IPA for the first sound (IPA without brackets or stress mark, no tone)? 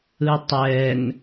ɯ